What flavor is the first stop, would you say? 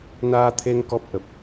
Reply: aspirated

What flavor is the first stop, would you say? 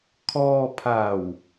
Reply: aspirated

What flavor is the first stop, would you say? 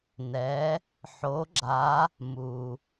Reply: click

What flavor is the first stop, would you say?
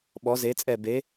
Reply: implosive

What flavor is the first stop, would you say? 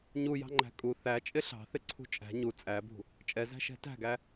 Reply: click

